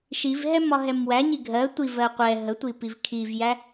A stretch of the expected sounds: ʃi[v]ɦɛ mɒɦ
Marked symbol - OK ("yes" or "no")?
yes